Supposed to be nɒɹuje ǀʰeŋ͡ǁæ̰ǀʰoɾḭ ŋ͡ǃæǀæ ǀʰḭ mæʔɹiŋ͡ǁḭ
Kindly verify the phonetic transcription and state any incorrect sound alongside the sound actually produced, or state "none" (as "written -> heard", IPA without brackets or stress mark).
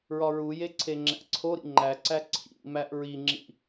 n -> ɹ